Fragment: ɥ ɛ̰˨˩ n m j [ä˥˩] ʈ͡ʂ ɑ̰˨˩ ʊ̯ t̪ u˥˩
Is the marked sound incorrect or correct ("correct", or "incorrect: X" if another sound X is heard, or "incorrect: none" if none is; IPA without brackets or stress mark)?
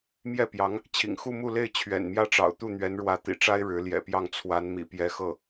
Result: correct